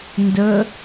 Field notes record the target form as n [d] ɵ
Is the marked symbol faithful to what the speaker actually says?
yes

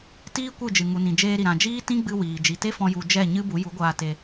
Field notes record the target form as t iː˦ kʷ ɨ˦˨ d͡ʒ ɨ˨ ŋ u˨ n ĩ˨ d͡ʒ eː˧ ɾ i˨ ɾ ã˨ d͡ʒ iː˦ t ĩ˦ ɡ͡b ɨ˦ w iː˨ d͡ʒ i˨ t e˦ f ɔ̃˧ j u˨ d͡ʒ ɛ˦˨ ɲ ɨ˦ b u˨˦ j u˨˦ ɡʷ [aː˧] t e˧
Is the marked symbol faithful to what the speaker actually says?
yes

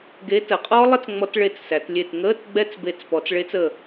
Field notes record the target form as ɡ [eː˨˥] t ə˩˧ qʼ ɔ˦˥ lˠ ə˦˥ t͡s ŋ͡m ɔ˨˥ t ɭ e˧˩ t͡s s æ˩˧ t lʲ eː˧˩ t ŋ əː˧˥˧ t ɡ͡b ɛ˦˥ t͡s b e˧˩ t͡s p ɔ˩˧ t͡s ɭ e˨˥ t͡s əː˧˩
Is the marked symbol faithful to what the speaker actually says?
no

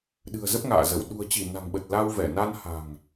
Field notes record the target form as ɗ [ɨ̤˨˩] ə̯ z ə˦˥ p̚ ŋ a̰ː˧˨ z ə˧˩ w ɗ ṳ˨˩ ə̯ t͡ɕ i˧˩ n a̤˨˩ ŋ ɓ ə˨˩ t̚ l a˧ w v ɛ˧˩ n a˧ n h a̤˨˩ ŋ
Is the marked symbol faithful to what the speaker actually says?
yes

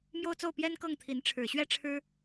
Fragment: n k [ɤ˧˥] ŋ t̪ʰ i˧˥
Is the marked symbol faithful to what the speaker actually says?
no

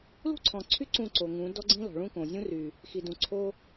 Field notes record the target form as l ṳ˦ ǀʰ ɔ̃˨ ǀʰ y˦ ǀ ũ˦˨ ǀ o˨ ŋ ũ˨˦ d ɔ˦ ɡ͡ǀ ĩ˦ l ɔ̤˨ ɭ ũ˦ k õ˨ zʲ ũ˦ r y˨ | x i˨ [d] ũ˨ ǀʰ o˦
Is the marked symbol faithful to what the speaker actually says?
yes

